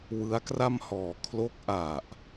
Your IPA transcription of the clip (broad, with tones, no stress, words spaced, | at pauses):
wɯ˦˥a̯kra˥˩mhɔː˨˩ kʰlo˦˥k̚ʔa˨˩ʔ